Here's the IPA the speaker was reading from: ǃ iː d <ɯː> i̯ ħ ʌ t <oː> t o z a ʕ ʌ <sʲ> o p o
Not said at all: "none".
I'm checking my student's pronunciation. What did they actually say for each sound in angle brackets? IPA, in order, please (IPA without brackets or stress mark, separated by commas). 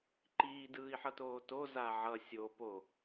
ɯː, oː, sʲ